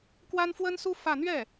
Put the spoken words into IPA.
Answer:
k w a˥ n f w ə˥ n s u˥ f ä˥˧ n̪ ɥ ɛ˥˩

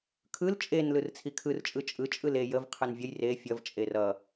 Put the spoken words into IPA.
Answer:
kʰ ɯ l t͡ʃʼ e n l ɯ r t͡sʰ i kʰ ɯ r t͡ʃʼ ɯ t͡ʃʼ ɯ t͡ʃʼ ɯ l e j ə v qʰ ɯ n vʲ ə j r e fʲ ʌ v t͡ʃʼ e r ʌ

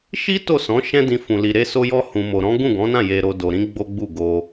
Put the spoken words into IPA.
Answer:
ʃ i˦ t o˦˨ s ɔ̃˨˦ ʃ ɛ̃˦ d ĩ˦ f ũ˧ l i˧ ɾ e˧ s o˧ j ɔ˧ h ũ˨ m o˨ ɾ ɔ̃˨˦ ɡ ũ˦˨ ɡ ɔ̃˨˦ n ã˦˨ j e˧ ɾ o˧ d o˧ ɾ ĩ˦ ɡ͡b o˦ ɡ͡b u˦˨ ɡ o˧

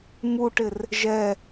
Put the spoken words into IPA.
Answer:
m u ʈ ɪ r | ʒ ɛ

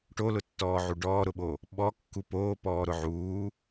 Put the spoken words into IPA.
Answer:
ʈ o l ʊ tː ɔː ʕ u ɖ ɔː ɾ ʊ ɓ o | ɓ ɔ kː u p oː p ɔː ɾ ʊ ʕ uː

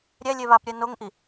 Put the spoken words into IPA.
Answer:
ɾʲ ɛ lʲ e β a p ɾʲ ɛ n o ŋ ʔ i

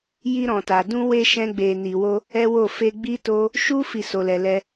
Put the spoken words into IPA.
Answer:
j i˧ ɾ ɔ̃˨ t a˨ d ũ˧ w e˧ ʃ ɛ̃˦ ɡ͡b e˧ n i˧ w o˦ | ɛ˦ w o˦˨ f e˧ ɡ͡b i˦ t o˦ | ʃ u˦ f i˦˨ s o˧ l ɛ˧ l ɛ˦

